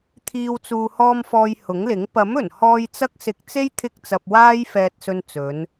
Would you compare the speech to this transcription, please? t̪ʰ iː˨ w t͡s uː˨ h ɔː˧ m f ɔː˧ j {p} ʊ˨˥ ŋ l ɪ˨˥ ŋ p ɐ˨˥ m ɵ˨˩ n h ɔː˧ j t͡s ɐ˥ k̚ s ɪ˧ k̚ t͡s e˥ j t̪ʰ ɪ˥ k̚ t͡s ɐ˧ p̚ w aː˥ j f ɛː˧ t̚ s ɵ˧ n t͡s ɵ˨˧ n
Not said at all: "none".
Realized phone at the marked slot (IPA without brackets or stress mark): h